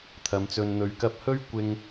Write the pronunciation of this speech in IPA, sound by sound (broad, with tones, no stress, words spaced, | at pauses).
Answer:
t̪ʰɐ˨˧mt͡sɵ˧nn̪ɵ˧ɥ kɐ˧p̚hɵ˥ɥ kʷɪ˥ŋ